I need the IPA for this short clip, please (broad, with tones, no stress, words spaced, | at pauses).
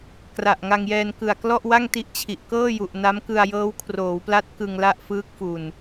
kra˨˩ʔ ŋa˧ŋjɛː˧n kɯ˨˩a̯klɔ˥˩ʔ wa˥˩ŋti˦˥ʔt͡ɕʰi˨˩ʔ kɤː˥˩ju˨˩ʔ na˦˥mkɯ˧a̯ jɤː˦˥wkʰroː˩˦wpla˦˥t̚ kɯ˧ŋla˥˩ʔ fɯː˦˥k̚fu˨˩n